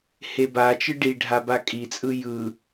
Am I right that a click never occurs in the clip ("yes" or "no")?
yes